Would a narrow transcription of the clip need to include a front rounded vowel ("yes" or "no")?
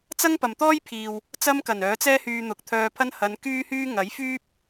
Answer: yes